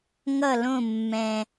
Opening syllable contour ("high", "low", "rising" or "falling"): falling